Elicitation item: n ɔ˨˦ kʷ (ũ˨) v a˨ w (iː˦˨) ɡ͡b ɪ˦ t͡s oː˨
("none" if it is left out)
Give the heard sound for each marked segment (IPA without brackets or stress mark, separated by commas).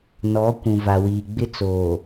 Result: ũ˨, iː˨